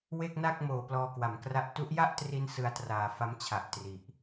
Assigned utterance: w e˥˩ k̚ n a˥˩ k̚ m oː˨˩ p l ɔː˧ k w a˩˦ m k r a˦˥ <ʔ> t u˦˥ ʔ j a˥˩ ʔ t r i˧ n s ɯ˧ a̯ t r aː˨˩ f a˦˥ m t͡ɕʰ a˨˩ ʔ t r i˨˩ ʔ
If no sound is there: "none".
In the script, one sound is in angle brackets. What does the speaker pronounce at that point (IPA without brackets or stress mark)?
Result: ʔ